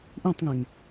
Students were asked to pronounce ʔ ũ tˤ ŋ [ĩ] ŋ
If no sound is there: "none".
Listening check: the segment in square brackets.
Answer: ẽ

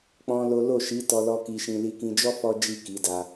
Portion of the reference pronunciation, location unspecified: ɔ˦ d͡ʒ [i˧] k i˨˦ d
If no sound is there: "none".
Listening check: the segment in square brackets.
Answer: i˦˨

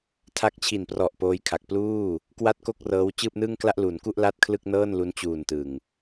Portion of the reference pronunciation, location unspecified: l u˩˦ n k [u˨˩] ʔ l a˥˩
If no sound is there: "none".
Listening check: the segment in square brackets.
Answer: u˥˩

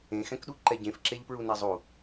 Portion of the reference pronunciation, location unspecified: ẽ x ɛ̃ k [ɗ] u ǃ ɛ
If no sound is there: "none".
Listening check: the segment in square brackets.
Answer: ɗ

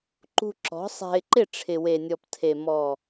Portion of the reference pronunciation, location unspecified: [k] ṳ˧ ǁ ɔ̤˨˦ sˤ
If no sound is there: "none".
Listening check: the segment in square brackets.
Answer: ǃ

